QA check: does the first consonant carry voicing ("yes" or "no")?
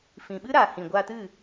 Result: no